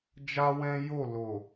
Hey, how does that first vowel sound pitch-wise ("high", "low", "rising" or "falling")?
high